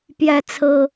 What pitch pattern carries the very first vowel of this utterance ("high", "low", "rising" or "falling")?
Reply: high